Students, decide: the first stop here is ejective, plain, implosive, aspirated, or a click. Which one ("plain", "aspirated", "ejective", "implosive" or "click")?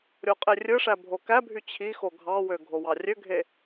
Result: ejective